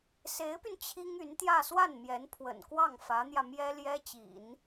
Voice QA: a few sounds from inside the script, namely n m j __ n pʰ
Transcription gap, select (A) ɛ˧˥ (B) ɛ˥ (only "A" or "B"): A